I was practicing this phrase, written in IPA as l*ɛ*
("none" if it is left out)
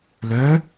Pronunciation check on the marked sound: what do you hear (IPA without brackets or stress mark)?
œ